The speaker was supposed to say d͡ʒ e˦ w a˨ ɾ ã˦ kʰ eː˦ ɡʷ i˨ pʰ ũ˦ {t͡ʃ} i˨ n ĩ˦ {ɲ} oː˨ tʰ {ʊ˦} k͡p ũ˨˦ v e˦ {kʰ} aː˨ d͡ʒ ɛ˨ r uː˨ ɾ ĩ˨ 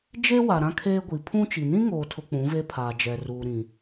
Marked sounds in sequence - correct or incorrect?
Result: correct, incorrect: ŋ, incorrect: ʊ˨, incorrect: pʰ

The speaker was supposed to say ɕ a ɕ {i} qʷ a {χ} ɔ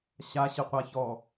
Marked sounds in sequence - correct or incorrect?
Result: incorrect: ɪ, incorrect: ç

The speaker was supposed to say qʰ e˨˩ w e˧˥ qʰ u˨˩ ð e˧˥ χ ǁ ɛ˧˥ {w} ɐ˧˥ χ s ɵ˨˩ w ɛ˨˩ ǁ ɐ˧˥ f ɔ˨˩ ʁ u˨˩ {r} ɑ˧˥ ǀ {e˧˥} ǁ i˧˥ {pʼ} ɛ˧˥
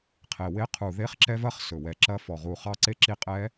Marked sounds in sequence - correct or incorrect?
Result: incorrect: v, incorrect: χ, correct, incorrect: qʼ

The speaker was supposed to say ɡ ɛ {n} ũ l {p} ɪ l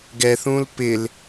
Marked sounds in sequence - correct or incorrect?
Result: incorrect: θ, correct

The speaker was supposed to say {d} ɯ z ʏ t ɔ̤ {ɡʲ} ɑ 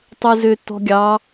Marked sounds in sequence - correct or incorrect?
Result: incorrect: tˤ, correct

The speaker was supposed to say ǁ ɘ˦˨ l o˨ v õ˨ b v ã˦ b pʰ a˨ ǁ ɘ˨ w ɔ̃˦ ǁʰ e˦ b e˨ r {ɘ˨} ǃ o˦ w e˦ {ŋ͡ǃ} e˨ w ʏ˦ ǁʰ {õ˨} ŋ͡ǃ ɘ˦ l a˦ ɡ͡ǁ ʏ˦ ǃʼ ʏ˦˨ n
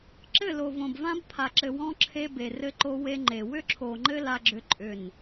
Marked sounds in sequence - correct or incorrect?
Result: incorrect: ɘ˦, correct, incorrect: o˨

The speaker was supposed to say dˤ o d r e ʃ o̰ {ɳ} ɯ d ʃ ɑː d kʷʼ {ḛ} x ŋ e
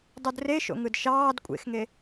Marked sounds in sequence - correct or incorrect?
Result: incorrect: ŋ, correct

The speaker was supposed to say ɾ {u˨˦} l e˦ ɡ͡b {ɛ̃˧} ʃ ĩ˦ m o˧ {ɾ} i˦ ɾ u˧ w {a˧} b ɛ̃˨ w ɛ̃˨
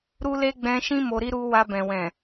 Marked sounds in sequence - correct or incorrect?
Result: incorrect: u˦, correct, correct, correct

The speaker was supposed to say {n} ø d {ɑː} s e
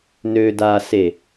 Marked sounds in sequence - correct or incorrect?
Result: correct, incorrect: aː

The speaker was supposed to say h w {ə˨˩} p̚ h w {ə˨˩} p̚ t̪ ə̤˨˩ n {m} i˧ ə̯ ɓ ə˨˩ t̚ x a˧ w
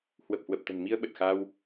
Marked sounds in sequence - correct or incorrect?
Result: correct, correct, correct

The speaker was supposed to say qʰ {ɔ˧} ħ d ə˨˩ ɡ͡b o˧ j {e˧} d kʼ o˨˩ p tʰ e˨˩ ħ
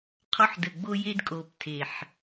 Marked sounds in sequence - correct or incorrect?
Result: correct, correct

